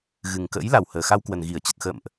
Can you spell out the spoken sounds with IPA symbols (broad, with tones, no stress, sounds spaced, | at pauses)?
ɣ ɨ˨˩ ŋ k ə̰ː˧˥ j l a˨˩ w h əː˨˩ x a˧ w k w ə˨˩ n ɣ i˧˩ ə̯ t͡ɕ ə˨˩ t̚ x ə̰ː˧˨ m ʔ